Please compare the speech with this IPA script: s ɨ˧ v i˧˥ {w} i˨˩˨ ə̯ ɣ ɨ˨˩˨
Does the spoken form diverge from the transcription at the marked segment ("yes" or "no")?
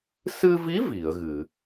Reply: yes